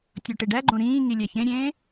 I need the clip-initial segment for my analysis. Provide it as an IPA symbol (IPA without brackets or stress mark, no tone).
tʲ